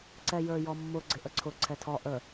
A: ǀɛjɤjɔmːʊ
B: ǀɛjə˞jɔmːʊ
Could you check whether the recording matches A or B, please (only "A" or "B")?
B